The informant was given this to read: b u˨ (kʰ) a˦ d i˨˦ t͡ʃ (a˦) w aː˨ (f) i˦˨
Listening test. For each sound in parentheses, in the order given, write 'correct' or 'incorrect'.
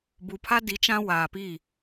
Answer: incorrect: pʰ, incorrect: ã˦, incorrect: p

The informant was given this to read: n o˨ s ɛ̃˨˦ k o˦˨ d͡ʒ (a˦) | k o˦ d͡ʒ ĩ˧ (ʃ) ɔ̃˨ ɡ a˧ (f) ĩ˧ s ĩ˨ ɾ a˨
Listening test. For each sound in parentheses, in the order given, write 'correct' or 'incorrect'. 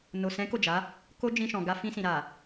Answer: incorrect: a˨˦, correct, correct

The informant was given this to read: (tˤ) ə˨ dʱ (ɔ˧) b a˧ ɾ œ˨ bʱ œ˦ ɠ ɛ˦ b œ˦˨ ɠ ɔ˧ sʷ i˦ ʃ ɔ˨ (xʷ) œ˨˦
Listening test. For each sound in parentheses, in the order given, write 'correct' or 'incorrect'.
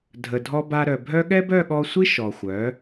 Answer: incorrect: dʱ, correct, correct

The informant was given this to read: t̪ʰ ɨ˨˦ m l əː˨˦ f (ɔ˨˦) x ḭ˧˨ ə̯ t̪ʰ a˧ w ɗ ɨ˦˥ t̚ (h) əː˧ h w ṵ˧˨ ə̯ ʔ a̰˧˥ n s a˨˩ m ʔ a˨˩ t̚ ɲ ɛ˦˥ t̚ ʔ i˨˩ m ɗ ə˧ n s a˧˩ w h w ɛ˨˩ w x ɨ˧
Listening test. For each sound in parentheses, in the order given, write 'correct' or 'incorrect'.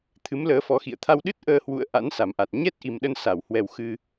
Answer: correct, incorrect: ʔ

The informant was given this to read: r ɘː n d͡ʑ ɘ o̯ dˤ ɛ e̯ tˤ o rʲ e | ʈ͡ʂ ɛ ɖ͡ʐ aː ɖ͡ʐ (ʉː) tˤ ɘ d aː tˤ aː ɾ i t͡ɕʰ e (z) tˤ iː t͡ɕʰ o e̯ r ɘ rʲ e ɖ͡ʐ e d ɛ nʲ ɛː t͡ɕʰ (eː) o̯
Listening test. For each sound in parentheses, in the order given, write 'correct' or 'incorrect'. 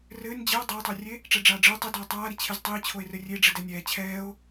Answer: incorrect: ɘː, correct, incorrect: ɛː

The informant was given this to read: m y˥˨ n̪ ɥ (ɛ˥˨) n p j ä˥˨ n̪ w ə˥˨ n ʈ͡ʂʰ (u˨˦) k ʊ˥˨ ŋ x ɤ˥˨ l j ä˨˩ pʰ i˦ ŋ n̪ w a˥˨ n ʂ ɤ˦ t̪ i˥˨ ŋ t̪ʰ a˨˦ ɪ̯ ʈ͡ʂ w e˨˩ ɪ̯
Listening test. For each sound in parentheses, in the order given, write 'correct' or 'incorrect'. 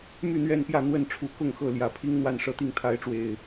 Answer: correct, correct

